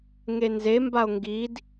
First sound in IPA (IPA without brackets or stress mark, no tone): ŋ